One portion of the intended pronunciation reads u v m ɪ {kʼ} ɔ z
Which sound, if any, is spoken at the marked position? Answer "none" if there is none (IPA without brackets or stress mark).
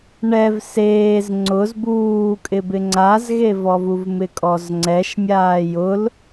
kʼ